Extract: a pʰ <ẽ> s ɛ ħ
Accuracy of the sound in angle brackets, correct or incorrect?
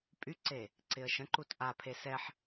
incorrect